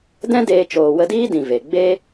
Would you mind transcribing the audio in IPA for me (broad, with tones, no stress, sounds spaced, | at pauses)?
d ɛ̃˦ d eː˧ t͡ʃ oː˨ w ə˧ d iː˦ d ĩ˨ v e˨ ɡ͡b e˦